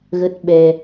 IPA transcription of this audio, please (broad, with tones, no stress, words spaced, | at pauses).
ɣə˦˥t̚ɓɛ˧